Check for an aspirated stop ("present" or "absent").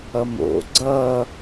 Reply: absent